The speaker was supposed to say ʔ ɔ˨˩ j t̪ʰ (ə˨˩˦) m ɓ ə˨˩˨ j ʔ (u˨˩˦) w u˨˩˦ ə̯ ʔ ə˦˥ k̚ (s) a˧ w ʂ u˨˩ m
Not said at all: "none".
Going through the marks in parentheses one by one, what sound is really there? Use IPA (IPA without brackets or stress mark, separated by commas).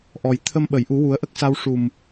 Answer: ə˧, u˨˩˦, s